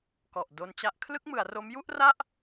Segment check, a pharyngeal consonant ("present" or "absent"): absent